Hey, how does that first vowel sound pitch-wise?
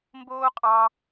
high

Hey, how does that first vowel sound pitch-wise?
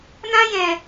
high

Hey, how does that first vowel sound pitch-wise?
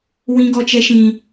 high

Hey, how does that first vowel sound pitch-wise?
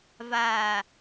low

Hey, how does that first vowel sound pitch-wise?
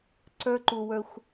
high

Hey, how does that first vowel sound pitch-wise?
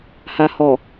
low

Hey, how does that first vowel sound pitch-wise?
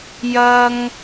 high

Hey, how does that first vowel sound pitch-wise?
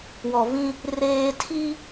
low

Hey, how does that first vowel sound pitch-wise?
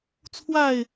falling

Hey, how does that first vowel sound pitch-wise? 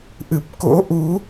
low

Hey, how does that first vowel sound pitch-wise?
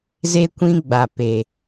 high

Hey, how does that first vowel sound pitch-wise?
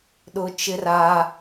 high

